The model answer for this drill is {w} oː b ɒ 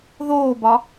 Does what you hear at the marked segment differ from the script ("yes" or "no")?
yes